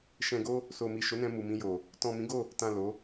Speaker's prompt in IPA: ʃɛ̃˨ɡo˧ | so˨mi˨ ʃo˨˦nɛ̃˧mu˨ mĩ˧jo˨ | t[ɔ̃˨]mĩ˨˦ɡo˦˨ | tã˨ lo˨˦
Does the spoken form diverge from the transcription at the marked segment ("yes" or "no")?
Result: no